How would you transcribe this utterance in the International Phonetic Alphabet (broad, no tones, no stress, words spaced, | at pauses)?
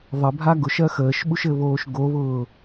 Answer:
ðˤəbʱa ɡʊʃɜ xəːʃɓuʃɘβoːʃ ɡoβʊː